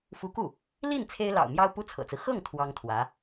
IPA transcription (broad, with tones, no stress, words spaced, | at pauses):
fu˧˥ku˥˩ | li˥˩n t͡sʰe˥ɪ̯lɑ̰˨˩ʊ̯ mjɑ˥ʊ̯pu˥t͡sʰɤ̰˨˩t͡sɹ̩˦ xɤ˥˩ŋ t̪ʰwɑ˥ŋt̪ʰwä˧˥